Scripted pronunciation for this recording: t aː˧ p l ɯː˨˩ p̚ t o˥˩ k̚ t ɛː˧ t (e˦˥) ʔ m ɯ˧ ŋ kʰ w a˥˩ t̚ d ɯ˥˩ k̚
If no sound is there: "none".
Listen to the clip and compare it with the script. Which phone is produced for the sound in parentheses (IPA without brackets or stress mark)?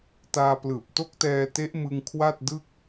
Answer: e˦˥